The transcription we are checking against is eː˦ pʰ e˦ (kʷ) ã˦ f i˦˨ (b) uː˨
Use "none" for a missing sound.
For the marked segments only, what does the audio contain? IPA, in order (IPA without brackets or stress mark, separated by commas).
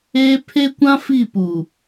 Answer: kʷ, p